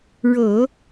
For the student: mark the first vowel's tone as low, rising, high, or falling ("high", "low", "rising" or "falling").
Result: low